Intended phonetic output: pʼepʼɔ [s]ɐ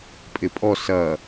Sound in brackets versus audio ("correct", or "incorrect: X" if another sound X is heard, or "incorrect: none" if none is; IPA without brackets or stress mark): correct